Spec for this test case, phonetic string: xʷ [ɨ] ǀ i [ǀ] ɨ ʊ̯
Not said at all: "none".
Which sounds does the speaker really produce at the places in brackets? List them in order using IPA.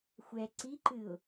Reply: ɛ, ǃ

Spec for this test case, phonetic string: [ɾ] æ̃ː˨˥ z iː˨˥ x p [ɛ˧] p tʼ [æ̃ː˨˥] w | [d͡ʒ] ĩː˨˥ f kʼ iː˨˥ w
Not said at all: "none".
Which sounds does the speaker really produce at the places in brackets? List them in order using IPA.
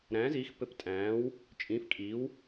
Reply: ɾ, ɘ˧, æ̃ː˨˥, t͡ʃʼ

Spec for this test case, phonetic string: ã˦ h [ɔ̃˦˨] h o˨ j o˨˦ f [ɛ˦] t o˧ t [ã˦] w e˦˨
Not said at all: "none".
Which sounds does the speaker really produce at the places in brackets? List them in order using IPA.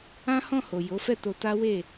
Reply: ɔ̃˦˨, ɛ˦˨, a˦

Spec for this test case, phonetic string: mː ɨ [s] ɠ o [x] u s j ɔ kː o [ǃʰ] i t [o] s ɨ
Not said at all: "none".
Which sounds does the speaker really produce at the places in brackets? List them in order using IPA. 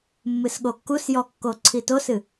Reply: s, kː, ǀʰ, o

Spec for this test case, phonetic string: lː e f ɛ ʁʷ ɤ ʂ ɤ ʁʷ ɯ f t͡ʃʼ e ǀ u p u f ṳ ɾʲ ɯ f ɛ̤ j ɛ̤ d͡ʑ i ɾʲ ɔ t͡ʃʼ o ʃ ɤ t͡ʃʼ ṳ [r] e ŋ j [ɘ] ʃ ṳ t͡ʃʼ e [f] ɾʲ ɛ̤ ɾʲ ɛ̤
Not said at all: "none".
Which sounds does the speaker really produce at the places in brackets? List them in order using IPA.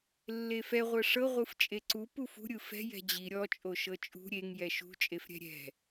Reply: ɾʲ, ɛ, f

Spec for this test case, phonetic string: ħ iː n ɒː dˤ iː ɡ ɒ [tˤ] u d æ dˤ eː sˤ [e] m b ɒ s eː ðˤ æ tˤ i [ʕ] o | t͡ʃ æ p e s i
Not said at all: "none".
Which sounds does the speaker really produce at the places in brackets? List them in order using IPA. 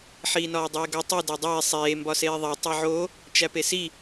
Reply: tˤ, eː, ʕ

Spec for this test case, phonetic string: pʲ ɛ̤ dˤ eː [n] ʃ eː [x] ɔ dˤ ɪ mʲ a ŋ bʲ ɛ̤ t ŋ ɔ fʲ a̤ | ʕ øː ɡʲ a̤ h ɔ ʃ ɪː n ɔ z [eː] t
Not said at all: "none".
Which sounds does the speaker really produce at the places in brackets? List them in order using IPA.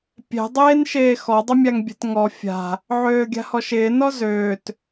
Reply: n, x, øː

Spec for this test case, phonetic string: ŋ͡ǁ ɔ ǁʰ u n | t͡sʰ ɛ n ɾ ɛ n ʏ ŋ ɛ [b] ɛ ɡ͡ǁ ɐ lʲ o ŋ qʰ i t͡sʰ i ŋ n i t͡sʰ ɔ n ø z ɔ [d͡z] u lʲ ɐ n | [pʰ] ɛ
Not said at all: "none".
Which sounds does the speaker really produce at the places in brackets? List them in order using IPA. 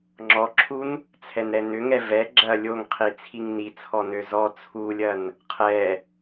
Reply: v, t͡sʰ, qʰ

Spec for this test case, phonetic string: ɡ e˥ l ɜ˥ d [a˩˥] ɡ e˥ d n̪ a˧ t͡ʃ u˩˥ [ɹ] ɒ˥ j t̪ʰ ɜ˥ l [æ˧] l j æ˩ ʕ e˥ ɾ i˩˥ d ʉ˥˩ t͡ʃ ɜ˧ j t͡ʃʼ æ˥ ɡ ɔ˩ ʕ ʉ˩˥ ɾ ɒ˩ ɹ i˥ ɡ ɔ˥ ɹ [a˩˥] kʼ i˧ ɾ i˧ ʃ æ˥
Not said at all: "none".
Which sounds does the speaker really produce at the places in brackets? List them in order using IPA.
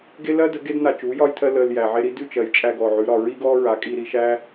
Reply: ə˩˥, j, ə˧, a˩˥

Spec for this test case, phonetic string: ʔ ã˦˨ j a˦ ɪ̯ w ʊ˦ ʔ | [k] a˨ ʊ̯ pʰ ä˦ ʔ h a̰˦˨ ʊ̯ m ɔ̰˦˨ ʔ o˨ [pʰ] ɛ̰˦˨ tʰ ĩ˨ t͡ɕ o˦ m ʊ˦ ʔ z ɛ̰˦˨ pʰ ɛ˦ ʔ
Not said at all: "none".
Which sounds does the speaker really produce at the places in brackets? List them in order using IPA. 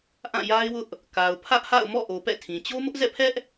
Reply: k, p

